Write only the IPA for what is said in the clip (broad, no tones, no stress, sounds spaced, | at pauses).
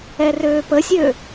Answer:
ɛ r øː p ə sʲ ø